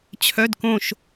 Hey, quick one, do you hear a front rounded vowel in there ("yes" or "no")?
yes